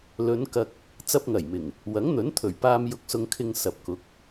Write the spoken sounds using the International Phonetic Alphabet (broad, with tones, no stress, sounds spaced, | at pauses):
l ɵ˨˧ n k ɐ˧ k̚ | t͡s ɐ˧ p̚ ŋ ɐ˨˩ j m ɪ˨˩ ŋ | w ɐ˨˥ ŋ n̪ ɵ˨˥ n t̪ʰ ɵ˨˩ ɥ p aː˧ m j ʊ˨ k̚ s ʊ˨ ŋ kʰ ɪ˨ ŋ s ɐ˨ p̚ k ʊ˨˥ k̚